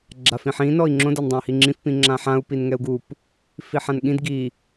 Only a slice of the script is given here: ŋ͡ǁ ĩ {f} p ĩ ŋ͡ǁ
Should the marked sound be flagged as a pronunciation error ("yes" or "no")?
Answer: no